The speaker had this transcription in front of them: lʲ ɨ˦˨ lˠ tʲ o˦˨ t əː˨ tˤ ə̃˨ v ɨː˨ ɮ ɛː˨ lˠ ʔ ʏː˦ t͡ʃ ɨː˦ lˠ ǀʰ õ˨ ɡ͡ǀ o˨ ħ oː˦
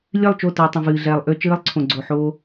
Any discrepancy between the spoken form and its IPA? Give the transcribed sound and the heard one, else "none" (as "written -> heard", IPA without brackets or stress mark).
tʲ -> t͡ʃ